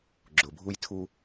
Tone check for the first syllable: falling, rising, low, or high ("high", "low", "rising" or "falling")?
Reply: low